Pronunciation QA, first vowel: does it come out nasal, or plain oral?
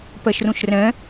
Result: oral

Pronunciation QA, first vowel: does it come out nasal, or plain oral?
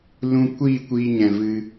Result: nasal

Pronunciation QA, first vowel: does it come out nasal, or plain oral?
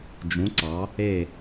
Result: nasal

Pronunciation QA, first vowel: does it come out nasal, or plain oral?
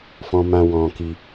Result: nasal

